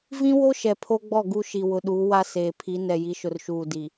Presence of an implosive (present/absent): present